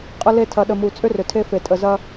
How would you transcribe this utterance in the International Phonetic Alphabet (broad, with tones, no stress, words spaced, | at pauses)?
qʼə˨le˨ tʰɐ˨ɗə˨mu˨ t͡sʼʏ˦rʏ˨tʰe˦fe˨ tʼə˨zɐ˦